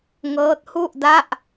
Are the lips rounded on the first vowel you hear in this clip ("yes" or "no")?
no